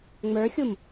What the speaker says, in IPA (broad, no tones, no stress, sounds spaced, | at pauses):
ŋ͡m ə˞ xʲ u m